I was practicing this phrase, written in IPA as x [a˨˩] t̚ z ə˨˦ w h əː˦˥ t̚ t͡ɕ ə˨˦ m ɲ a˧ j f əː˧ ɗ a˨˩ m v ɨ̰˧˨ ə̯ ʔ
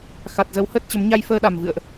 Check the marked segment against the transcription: correct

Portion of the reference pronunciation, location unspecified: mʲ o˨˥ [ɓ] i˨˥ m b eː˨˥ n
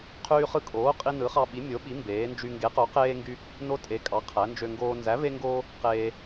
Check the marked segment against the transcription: correct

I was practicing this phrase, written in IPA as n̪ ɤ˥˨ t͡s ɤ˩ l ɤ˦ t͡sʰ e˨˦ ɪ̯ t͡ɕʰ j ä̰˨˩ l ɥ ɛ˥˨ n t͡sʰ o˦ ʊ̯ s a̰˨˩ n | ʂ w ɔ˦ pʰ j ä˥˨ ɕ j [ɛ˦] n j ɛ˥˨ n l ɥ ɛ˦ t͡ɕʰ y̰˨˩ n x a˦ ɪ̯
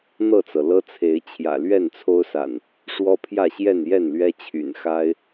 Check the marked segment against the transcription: incorrect: ɛ˥˨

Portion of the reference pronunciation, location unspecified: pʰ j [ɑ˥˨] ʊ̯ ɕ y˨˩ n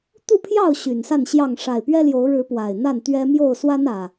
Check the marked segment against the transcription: correct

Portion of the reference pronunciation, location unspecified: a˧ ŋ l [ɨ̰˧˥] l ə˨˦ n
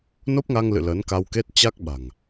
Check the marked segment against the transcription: incorrect: ɨ̰˧˨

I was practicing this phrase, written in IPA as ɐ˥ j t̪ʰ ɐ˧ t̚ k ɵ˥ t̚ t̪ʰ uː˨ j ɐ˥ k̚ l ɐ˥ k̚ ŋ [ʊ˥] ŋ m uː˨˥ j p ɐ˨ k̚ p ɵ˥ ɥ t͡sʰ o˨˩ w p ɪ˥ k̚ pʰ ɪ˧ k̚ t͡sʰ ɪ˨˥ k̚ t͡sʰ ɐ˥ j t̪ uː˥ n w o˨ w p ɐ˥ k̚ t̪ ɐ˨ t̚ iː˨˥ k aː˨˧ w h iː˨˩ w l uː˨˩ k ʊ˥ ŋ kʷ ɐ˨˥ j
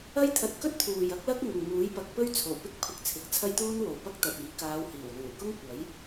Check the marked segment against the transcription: incorrect: ʊ˨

